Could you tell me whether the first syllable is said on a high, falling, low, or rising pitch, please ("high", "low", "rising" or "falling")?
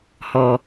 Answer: low